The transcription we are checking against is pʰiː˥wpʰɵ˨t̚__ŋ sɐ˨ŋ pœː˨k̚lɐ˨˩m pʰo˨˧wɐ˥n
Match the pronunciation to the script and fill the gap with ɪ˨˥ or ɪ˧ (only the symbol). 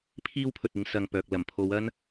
ɪ˧